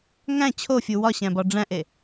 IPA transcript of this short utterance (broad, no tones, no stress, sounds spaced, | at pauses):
ŋ æ̃ t͡ɕʰ o fʲ u w ɒ ɕ æ̃ b ɒ ɖ͡ʐ æ̃ ʔ e